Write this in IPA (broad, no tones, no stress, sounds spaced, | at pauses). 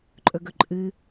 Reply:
ǃʼ ɵ ɡ ɵ ǃʼ ɨ